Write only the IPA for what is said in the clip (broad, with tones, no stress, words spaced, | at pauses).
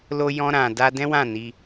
lo˧ jɔ̃˧ɾã˨da˧ dɛ̃˦wã˦˨ni˧